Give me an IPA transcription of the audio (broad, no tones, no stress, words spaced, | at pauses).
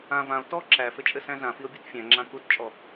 ã vão̯ tɔ ǁæfɘt͡ʃʼɘsæ̃ zãfio̯bʲut fʲæ̃ŋ͡ǁã kutt͡ʃʼɔ